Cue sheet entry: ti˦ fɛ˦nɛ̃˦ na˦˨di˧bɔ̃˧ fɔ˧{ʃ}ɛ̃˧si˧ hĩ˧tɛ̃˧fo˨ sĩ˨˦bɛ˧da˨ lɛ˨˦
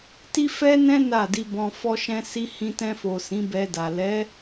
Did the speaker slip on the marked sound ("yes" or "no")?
no